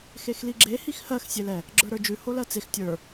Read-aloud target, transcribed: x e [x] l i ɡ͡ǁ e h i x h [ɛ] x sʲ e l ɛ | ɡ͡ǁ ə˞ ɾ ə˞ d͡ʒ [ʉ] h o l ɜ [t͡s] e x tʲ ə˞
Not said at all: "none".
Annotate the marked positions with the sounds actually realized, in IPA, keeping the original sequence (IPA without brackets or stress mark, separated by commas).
x, ɜ, ʉ, t͡s